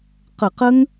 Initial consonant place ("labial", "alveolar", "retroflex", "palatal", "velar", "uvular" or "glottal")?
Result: uvular